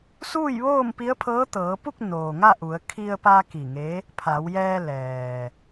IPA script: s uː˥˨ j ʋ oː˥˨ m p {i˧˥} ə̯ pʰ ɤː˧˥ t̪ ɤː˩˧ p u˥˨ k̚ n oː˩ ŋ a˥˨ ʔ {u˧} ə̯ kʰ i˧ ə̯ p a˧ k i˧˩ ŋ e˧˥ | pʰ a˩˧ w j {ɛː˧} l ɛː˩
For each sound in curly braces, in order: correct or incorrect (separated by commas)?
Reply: correct, incorrect, correct